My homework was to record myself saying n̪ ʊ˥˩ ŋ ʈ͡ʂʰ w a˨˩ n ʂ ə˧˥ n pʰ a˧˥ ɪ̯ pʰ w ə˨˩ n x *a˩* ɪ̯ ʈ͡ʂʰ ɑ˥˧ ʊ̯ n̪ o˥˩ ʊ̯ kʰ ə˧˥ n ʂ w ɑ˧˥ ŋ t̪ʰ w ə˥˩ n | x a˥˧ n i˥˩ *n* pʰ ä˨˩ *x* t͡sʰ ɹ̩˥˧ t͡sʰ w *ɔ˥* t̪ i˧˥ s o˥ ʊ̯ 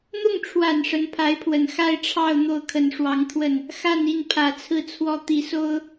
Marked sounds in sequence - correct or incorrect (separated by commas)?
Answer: incorrect, correct, incorrect, incorrect